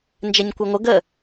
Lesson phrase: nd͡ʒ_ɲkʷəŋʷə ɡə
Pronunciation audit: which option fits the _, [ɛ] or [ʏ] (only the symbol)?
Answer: ɛ